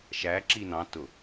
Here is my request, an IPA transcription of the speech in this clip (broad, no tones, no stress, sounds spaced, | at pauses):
ʃ æ ǁ i n ɑ̃ t ʊ